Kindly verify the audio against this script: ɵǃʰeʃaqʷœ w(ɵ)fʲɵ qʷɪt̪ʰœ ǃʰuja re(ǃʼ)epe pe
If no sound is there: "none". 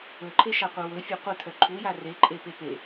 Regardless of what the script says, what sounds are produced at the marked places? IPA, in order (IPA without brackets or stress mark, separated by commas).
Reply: ɵ, ǃʼ